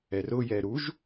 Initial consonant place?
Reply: alveolar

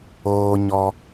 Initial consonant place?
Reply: palatal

